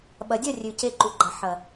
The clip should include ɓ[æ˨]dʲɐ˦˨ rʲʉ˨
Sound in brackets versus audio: incorrect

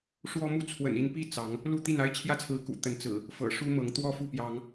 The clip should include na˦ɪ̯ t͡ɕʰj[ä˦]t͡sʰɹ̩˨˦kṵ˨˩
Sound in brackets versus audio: correct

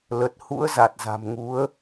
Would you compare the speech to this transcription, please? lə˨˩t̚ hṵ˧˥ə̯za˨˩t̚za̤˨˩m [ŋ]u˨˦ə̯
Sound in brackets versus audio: correct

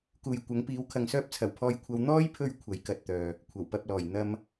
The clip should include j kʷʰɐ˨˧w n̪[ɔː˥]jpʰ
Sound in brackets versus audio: correct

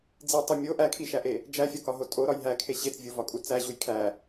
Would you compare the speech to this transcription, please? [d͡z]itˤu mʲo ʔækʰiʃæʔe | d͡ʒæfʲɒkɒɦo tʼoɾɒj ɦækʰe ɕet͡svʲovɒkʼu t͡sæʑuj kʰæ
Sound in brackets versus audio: correct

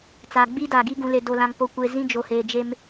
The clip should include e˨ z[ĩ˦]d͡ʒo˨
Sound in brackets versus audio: correct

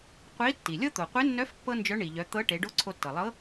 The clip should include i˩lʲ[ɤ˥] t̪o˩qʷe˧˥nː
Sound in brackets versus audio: correct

